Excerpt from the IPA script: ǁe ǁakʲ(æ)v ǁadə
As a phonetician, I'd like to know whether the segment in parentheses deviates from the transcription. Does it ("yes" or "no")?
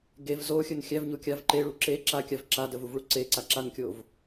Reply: yes